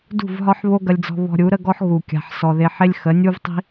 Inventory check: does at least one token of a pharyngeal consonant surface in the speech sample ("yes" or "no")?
yes